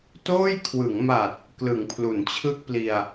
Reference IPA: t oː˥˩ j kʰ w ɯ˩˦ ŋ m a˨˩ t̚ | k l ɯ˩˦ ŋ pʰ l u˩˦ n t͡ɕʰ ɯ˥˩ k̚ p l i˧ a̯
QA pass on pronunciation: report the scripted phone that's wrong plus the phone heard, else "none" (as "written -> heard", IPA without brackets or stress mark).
none